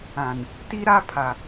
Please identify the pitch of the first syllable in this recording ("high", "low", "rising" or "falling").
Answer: low